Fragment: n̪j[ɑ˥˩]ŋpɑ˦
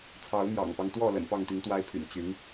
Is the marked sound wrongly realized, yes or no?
yes